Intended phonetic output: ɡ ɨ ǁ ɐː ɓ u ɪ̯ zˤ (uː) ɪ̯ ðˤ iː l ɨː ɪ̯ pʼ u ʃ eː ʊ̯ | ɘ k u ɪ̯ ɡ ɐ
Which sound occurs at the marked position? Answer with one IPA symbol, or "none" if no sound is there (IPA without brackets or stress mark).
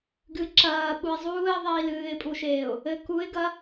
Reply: uː